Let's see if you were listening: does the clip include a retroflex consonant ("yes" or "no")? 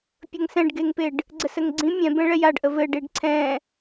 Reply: yes